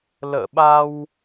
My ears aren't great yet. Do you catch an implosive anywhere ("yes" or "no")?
yes